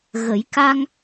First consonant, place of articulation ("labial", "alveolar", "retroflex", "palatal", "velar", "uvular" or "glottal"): velar